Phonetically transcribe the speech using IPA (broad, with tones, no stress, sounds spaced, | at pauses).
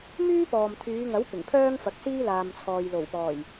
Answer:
m yː˥ p ɔː˨ m t̪ʰ yː˨˧ ŋ ɐ˨˥ w p ɪ˨˩ ŋ pʰ œː˥ ŋ f ɐ˨˥ k̚ s iː˥ l aː˨ m t͡sʰ ɔː˨ j l o˨˩ w p ɔː˨˩ j